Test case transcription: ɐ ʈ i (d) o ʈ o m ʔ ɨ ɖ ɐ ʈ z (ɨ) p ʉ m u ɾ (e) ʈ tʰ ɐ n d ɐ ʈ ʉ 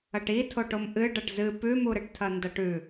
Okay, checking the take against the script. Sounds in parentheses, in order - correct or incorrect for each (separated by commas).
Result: incorrect, correct, incorrect